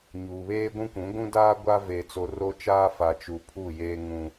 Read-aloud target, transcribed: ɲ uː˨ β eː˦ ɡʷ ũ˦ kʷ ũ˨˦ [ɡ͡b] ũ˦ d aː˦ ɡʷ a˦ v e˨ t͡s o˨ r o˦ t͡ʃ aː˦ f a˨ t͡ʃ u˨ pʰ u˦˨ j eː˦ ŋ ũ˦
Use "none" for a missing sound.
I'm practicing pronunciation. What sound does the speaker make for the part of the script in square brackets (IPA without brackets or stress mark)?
ɡʷ